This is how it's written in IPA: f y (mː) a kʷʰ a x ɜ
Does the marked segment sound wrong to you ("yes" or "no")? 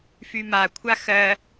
yes